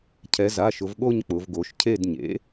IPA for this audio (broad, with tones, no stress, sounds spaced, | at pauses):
cʰ ɛ˩˧ z a˩˧˩ ʃ ʊ˩˧ v ɠ o˦˨ ɲ k͡p ʊ˩˧ v ɡ o˩˧ ʃ cʰ e˦˨ d ɲ ḛ˩˥